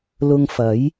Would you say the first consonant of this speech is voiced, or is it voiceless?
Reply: voiced